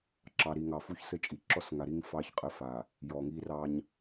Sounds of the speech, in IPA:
ǁ ɑ˨ ɾ i˨ ŋ ɑ˨ f u˦ ç s ɘ˦ t͡ʃʼ i˨ ǁ ɔ˦ s ŋ a˨ ɾ i˦ ŋ f ɑ˦ ç qʼ ɘ˦˨ f a˨ | j ɔ˨ ŋ i˦ r ɑ˦ ɲ

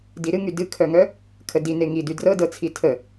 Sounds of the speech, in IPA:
d i ɾ ɨ ŋ y d ɨ kʰ œ ŋ œ | kʰ ə d i n e ŋ i d y d r ɤ d ɤ t͡sʰ i tʰ ə

